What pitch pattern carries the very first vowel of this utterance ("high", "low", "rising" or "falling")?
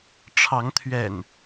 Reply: rising